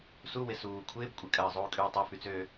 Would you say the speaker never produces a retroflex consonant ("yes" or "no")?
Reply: yes